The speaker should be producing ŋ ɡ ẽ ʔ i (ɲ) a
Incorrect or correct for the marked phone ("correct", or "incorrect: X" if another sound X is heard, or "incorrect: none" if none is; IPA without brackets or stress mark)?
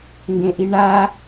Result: incorrect: ɳ